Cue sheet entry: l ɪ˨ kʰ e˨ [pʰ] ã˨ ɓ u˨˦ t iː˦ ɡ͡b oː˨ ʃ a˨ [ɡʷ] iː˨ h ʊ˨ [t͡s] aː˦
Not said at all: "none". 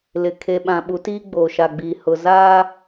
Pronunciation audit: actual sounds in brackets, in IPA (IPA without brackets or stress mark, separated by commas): ɓ, ɡ͡b, z